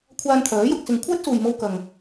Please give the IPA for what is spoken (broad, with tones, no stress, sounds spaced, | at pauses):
kʷʰ aː˧ n t̪ʰ œː˨˥ j ʊ˧ k̚ s ɪ˧ ŋ kʷʰ ɛː˥ t̚ s uː˨ j m o˧ w k ɐ˨ ŋ